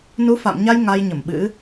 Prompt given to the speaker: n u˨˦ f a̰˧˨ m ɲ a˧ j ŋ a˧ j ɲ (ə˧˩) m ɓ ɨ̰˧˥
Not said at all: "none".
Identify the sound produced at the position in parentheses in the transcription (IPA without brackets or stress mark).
ə˧˩